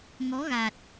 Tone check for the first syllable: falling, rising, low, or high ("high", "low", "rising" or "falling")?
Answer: rising